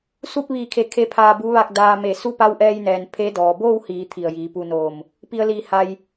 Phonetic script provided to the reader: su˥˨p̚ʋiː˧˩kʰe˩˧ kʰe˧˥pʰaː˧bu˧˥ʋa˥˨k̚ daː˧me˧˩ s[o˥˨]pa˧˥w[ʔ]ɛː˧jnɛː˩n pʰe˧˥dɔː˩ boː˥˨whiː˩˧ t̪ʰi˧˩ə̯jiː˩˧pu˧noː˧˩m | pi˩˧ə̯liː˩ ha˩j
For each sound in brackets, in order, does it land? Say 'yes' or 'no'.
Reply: no, yes

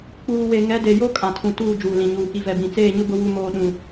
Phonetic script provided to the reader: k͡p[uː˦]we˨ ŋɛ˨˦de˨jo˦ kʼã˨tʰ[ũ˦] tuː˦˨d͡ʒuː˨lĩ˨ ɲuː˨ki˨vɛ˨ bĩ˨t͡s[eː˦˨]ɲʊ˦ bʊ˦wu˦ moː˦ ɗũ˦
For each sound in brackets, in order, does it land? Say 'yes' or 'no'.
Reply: no, no, yes

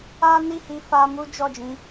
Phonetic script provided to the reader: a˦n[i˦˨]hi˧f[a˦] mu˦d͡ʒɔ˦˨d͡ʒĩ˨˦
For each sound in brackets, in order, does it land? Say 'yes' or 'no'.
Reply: yes, no

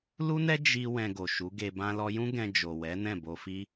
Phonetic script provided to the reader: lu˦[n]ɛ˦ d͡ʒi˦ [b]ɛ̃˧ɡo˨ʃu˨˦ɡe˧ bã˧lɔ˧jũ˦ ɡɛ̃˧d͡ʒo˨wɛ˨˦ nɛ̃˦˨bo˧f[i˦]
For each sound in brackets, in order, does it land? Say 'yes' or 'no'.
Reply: yes, no, yes

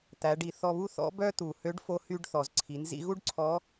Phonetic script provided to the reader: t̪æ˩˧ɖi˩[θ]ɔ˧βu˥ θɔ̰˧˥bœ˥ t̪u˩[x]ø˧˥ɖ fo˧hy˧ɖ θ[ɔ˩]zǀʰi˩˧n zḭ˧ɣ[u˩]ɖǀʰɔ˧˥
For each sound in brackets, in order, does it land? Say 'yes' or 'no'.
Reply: yes, no, yes, no

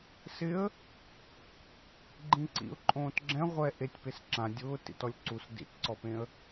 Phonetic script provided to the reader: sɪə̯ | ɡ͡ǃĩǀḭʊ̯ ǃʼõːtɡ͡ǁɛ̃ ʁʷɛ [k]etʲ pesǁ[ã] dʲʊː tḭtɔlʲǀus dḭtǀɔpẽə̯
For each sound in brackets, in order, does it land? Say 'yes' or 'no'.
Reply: no, yes

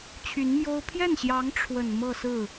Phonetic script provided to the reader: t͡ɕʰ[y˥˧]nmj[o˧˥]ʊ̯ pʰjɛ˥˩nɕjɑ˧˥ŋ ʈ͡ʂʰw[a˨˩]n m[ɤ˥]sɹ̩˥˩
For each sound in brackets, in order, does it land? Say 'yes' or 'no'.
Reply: no, no, no, no

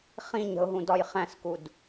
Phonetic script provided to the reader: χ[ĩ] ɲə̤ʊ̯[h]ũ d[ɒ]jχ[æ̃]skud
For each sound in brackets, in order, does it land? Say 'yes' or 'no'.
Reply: yes, no, yes, yes

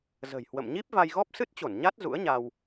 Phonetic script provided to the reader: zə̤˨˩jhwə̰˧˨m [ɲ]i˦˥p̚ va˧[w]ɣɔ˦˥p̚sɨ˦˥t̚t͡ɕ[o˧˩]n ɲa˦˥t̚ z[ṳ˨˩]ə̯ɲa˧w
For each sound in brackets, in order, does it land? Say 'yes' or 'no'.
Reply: yes, no, yes, no

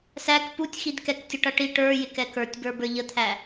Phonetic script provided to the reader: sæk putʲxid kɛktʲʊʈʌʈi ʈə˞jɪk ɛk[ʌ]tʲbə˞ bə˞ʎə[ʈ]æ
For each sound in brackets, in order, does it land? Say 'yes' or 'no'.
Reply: no, no

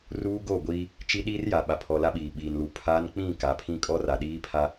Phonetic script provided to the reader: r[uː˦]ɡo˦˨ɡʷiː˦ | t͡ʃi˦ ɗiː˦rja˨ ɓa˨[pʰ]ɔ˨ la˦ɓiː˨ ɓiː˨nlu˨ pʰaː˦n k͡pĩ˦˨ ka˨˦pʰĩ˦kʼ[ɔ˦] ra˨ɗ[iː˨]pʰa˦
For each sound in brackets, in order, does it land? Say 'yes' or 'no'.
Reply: yes, yes, yes, no

